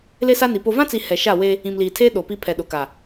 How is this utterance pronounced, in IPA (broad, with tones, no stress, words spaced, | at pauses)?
le˦sa˦ni˨ po˨vã˦t͡si˨ hɛ˨ ʃa˦˨we˦ | ĩ˨mliː˨tʰeː˦ ɗo˨pi˦ pʰɛ˨ɗʊ˨ka˨